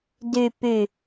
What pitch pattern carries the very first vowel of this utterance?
low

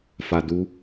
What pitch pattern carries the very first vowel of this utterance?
low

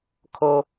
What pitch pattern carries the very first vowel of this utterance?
high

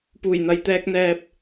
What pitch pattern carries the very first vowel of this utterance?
low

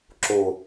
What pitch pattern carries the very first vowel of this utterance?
low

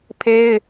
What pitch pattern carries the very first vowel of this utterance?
high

